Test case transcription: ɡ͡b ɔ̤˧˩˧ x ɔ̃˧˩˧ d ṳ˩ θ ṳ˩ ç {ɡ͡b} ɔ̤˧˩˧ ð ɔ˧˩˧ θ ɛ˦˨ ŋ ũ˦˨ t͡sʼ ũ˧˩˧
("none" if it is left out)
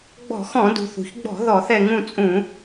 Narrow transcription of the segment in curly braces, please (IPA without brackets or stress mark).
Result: ɡ͡b